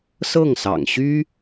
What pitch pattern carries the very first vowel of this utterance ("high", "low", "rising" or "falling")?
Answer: falling